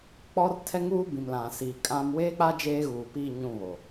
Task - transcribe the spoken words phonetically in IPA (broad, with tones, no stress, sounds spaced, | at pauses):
k͡p ɔ˦ r tʰ ɛ˦ ŋ uː˦ b ĩ˨ m l ã˨ s iː˨ kʼ ã˦ m w eː˦ k͡p a˦ d͡ʒ eː˦ ɣ uː˨ p i˦˨ ɲ ũ˦˨ β o˨